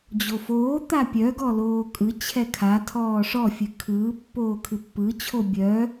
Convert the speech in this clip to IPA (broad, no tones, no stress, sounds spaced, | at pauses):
d͡ʑ o f oː t̪ a pʲ œ ɡ ɔ l oː kʼ ɯ t͡ɕʰ ɛ kʰ a tʰ ɔː ʂ ɔ fʲ ɨ kʰ ɯː pː oː kʰ ɨ pː ɯ t͡ɕʰ o bʲ œ